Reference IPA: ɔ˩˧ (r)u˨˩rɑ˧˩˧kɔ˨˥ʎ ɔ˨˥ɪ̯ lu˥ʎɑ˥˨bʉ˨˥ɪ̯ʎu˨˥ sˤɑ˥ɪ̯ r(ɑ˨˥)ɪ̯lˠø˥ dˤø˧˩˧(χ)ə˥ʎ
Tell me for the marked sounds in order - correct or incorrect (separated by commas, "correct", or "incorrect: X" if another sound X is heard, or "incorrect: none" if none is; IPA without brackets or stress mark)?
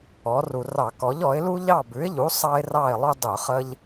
correct, incorrect: ɑ˥˨, correct